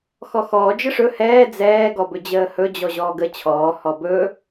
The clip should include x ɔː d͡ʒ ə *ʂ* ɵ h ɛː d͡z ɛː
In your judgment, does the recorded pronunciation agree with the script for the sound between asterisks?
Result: yes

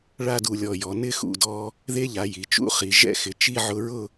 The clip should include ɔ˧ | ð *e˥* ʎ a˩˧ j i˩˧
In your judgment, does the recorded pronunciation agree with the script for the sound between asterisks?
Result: yes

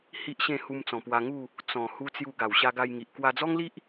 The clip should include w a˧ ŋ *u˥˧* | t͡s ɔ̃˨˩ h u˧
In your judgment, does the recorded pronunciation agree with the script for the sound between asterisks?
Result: yes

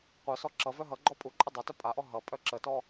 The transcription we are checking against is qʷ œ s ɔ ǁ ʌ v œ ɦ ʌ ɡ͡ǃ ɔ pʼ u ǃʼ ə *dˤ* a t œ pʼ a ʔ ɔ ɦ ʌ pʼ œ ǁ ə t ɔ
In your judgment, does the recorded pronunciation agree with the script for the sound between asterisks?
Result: yes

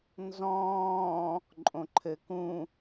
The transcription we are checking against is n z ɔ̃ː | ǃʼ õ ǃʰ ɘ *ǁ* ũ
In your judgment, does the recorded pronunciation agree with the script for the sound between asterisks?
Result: no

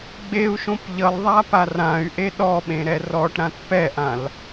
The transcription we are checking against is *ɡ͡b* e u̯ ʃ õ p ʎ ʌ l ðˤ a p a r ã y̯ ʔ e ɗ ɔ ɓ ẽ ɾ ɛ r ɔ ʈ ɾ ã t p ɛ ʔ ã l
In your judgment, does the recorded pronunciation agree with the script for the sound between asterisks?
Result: yes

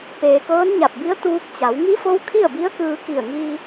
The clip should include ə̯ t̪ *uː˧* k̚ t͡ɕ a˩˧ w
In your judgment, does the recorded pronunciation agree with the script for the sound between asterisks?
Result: yes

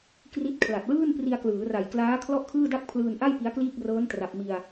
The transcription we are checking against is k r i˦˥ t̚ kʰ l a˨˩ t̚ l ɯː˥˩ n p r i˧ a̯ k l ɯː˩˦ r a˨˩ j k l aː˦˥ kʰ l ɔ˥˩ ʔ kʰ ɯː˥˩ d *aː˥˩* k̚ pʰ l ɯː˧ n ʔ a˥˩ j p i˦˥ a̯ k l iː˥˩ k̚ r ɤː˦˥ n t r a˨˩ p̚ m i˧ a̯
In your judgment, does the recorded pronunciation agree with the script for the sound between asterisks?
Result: no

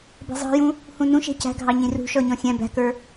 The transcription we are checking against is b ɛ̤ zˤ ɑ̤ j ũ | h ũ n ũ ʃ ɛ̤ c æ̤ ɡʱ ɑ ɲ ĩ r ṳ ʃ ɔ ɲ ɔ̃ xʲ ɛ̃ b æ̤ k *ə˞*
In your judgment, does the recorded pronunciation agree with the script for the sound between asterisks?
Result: yes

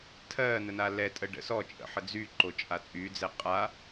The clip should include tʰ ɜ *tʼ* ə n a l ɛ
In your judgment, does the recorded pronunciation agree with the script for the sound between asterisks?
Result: no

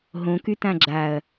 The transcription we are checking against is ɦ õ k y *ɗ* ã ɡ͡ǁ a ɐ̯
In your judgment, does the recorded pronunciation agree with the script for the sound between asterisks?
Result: no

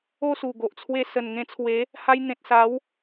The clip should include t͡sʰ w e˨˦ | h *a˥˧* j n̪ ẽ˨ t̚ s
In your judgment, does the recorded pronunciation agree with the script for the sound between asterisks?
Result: no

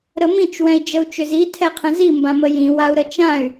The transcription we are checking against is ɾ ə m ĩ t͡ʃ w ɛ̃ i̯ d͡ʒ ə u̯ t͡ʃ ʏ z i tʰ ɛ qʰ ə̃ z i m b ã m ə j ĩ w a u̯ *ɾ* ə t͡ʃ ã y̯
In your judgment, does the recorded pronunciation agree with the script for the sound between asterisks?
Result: yes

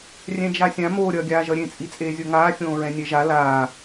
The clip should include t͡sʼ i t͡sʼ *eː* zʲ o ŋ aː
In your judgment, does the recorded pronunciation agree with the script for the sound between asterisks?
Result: yes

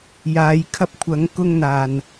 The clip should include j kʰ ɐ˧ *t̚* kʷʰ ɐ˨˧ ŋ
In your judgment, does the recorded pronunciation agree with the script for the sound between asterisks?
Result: no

